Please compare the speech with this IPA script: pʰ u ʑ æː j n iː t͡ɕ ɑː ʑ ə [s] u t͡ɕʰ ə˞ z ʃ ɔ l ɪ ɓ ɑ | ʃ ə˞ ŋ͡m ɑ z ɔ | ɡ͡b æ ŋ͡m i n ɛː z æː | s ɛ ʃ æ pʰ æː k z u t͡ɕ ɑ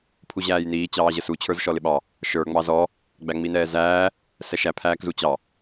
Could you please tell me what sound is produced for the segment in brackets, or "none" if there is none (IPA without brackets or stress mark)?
s